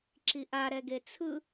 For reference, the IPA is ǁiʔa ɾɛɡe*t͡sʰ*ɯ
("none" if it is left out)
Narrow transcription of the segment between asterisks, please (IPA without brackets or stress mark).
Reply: t͡sʰ